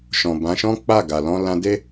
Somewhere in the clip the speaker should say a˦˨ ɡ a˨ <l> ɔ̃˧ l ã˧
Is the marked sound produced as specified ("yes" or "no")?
yes